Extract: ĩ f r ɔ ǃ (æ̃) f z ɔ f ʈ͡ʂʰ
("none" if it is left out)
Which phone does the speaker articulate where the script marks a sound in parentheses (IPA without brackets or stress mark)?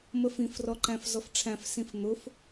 æ̃